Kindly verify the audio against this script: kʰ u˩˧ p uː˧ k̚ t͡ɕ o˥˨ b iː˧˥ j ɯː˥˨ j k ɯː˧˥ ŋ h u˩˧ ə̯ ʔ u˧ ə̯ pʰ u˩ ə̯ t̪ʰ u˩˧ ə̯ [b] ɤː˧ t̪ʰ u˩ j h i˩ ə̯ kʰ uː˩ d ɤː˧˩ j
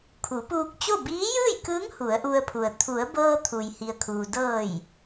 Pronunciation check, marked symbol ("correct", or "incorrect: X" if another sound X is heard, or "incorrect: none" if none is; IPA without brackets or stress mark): correct